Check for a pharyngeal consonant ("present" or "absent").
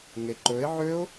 present